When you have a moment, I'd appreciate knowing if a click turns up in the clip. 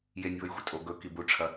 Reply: no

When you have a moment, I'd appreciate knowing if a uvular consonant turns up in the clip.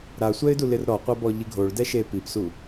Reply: yes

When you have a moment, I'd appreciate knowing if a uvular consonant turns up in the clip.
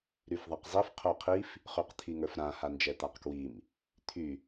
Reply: yes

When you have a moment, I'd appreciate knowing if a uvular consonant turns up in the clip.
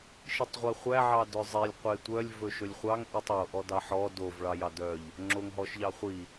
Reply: yes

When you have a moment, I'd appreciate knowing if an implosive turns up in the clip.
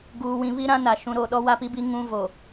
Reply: yes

